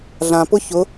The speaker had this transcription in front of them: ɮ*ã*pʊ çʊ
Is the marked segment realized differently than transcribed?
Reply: no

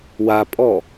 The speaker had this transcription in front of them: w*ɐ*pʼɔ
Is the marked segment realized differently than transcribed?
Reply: yes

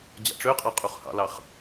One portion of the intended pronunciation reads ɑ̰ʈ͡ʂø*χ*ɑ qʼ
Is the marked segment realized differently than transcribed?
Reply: yes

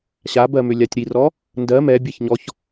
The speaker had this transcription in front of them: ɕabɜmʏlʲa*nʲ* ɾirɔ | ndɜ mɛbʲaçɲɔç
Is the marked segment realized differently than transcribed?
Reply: yes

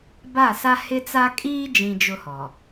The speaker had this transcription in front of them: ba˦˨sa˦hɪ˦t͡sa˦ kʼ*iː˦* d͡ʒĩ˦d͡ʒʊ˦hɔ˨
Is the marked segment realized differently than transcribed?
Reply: no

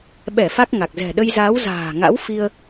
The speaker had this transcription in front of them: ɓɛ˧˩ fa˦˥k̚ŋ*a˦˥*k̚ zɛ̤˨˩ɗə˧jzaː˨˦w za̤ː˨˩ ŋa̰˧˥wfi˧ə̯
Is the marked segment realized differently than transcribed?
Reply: yes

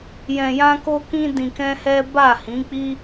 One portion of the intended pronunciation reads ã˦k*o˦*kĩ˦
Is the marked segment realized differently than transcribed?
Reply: no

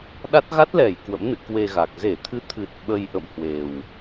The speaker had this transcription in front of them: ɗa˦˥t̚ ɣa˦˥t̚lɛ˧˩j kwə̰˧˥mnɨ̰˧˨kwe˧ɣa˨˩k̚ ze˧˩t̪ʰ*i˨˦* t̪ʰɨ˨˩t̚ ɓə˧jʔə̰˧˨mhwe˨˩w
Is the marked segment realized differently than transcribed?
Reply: yes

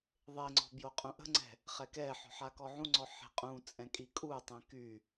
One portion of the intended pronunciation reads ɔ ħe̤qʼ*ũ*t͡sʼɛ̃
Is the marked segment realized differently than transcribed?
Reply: no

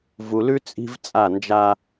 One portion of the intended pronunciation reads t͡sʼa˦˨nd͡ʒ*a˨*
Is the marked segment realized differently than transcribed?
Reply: yes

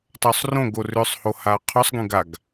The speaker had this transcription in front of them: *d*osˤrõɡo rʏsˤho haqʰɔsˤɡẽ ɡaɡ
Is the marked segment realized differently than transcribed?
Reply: yes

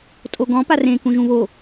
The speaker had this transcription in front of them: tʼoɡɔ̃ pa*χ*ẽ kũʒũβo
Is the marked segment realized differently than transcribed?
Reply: yes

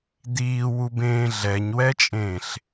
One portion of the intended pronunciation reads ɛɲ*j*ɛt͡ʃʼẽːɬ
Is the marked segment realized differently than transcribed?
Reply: yes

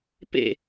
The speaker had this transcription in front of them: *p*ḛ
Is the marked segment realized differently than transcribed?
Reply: no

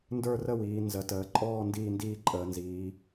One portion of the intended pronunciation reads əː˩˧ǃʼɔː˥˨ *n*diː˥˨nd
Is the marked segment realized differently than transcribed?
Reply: no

